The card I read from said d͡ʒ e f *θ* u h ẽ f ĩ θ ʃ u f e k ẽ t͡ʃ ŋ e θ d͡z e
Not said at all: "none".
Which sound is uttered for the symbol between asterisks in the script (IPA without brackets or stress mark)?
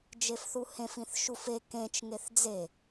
θ